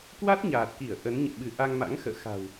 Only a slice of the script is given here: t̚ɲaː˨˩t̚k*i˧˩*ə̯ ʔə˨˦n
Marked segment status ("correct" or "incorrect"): correct